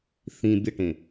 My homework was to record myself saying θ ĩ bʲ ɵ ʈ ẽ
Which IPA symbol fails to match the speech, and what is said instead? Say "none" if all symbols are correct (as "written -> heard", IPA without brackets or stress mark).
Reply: ɵ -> ə